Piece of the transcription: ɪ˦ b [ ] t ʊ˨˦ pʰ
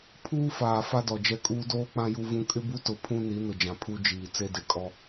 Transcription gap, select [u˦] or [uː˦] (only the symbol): u˦